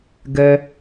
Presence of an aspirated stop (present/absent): absent